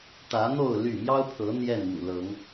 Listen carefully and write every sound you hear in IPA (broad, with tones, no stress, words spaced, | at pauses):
t̪ä˨˦n̪o˥˨ʊ̯ ly˥˨ mjɑ˦ʊ̯pʰɤ˨˦ n̪jɛ˥˨nmṵ˨˩lɤ˨˦ŋ